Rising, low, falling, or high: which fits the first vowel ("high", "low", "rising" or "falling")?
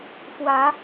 rising